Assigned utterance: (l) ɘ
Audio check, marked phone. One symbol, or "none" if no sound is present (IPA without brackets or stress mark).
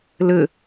l